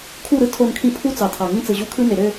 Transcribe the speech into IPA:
kʰ u˦˨ ɾ ɯ˦ tʰ o˦˨ n kʰ ĩ˦ pʰ u˦ t͡s ɑ˨ tʰ ɑ˨ ŋ ĩ˦ t͡s ɯ˨ ʑ u˦ kʰ ɯ˦ n e˨ ɾ ø˦˨

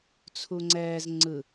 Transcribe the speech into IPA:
t͡sʰ u ŋ͡ǀ ɛː z ŋ͡ǀ ɯ

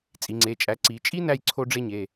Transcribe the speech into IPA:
t͡sʼ i˩˧ ŋ͡ǀ e˩˧˩ t͡ʃʼ æ˨˥ ǀ i˩˧ t͡ʃʼ i˥ n æ˥ j ǀʰ o˥ ɖ͡ʐ e˥ ɲ e˩˧˩

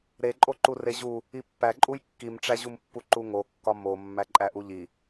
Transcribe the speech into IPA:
ɾ e ǃʼ o ǃ u r e ʑ u | i pː æ ǃʼ u j kː i m ʈ͡ʂ æ ʑ u m pː u ǃ u ŋ o kː ɒ m o mː æ ǃʼ æ ʔ u ʎ i

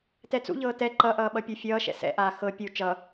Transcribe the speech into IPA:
t ɛ t͡s ṵ ʎ ɤː t ɛ ǃ ʌ ʔ ʌː ɓ ʌ pʲ ɤ fʲ ʌː ʃ ɛ̰ s ɛ̰ ʔ aː x ɤ pʲ u t͡ʃ ʌ

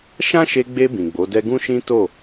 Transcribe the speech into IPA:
ʃ ã˦ ʃ e˧ ɡ͡b e˧ b ĩ˨ ɡ͡b o˨˦ d ɛ˦ ɡ ũ˦ ʃ ĩ˦ t o˦˨

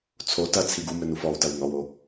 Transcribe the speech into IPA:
t͡sʰ o t ɐ t͡sʰ i ɡ u m ɘ n u f ɔ w t ɐ w n ɔ w o

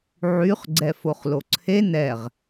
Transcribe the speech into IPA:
ʕ y χ ɡ͡ǀ ɛ f o χ l o ǀʰ e n ɛ ʁ

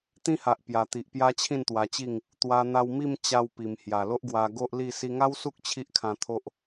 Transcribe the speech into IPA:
t̪ ĩ˦ h a˨ ʔ p j a˨˩ t̪ i˨ ʔ p j a˦ t͡ɕʰ ĩ˥˧ n t̪ w a˧ t͡ɕ i˥˧ ŋ | t̪ w a˧ n̪ a˧ w m i˥˧ m t͡ɕ a˧ w p i˨˩ m h j a˨˩ l o˦ ʔ ɡ w a˧ ɡ o˦ ʔ l i˥˧ s i˧ ŋ a˦ w s u˦ k̚ t͡ɕʰ i˦ ʔ kʰ ã˧ t̪ʰ o˦ ʔ

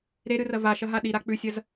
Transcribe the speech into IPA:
ɾ e ɾ ɨ r ɐ v a ʃ ɐ ɦ a ɗ i ɾ a k͡p ʉ sʲ ɐ z

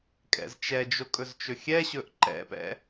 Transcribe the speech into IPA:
kʼ ɛ̰ z t͡ʃ ɛ d͡ʒ o kʼ ɵ z t͡ʃ ɵ xʲ ɛ ɕ ɵ ʔ ǃ ɛ̰ p ɛ̰

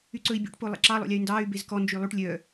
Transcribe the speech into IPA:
y ǀ ɵ i̯ bʲ o̰ ʈ p o lˠ ɛ̰ ǁ ɑ lˠ o̰ lʲ ɑ y̯ n d ɑː y̯ b e z k ɔ n d͡ʒ y lˠ ʉ ʈ lʲ œ

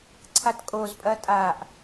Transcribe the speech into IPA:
ǀʰ a t kʼ o z pʼ ɐ tʼ a ʔ

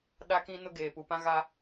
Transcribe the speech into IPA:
ɗ a˦ k ĩ˦ n ʊ˦ ɡ eː˨ p u˨ p ã˦ ɣ a˦

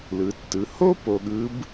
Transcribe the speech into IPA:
l ɯ˩˧ tː ɯ˩˧ h o˥ p o˧ ɠ ɯ˧˥ b

